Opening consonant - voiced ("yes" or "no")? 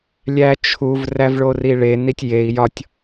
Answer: yes